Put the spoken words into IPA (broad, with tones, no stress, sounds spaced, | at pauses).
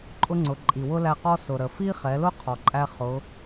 ǃʼ ʊ˥ ŋ͡ǀ ʊ˩˧ ǃʼ i˩ w ʊ˥ l æ˧ q ɔ˥ s ʊ˩ ɾ ə˩ f i˥ χ ɛ˩˧ l ʊ˥ qʰ ɔ˩ ǃʼ æ˧ χ ʊ˩˧